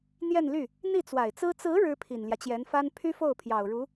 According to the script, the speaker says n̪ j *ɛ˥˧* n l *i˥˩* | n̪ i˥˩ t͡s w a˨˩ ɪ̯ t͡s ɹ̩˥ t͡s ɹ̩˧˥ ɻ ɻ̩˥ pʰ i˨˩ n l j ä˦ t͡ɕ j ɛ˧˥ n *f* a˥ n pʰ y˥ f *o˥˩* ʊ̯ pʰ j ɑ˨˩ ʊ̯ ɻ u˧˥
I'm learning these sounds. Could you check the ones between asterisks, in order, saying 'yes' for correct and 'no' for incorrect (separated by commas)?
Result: yes, no, yes, yes